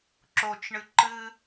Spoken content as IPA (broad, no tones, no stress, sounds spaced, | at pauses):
ǁ o t͡ʃ ɳ ɨ ǃ ɨ